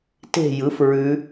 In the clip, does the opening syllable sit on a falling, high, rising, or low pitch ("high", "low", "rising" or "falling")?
falling